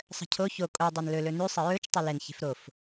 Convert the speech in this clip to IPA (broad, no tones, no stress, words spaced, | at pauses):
sˤə̤cʰo ço kʼo dˤɛnlɵ lɵnʉ sˤəɹɵt͡ʃ tˤɛlɛn çe̤fɾof